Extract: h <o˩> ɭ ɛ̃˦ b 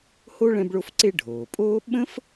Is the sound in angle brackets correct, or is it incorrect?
incorrect